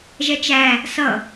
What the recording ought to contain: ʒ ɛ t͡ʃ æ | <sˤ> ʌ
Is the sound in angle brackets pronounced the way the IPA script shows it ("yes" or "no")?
no